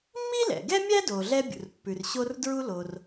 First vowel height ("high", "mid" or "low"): high